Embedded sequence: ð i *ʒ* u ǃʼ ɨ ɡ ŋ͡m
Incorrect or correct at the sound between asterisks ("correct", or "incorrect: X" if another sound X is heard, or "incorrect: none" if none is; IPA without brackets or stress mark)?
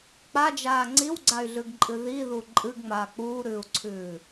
incorrect: ð